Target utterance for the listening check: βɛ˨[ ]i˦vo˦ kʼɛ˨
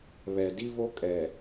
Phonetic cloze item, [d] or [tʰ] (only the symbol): d